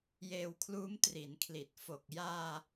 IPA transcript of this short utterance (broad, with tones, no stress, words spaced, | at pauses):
jeː˧wkʰluː˦˥mtri˩˦nkʰli˨˩t̚ fo˨˩k̚jaː˧